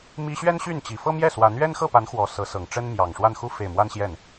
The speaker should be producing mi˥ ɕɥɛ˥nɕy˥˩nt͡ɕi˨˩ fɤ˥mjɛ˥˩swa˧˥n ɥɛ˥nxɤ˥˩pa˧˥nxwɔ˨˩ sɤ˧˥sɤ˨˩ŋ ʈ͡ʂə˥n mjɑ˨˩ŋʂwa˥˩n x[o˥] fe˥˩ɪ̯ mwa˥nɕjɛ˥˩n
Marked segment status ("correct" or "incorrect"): incorrect